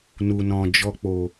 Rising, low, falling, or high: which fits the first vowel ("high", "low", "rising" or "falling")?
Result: low